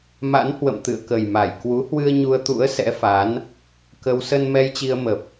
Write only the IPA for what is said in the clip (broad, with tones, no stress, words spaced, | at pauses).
ma̰˧˥n hwə̰˧˨mt̪ɨ̰˧˨ə̯kə˨˩jma˧˩j kwu˨˦hwɨ˧ə̯ ɲu˧ə̯t̪ṵ˧˥ə̯ sɛ̰˧˥fa˨˦n | kə˧w sə˧n mɛ˧jt͡ɕi˧ə̯mə˨˩p̚